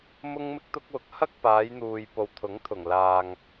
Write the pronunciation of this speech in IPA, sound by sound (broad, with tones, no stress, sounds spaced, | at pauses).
m ʊ˥ ŋ m ɪ˥ k̚ t̪ ʊ˥ k̚ w ʊ˨˥ k̚ h ɐ˥ k̚ p aː˨˧ j n̪ uː˨ j p o˨ w t̪ʰ ʊ˨˥ ŋ t̪ʰ ʊ˨˩ ŋ l aː˨ ŋ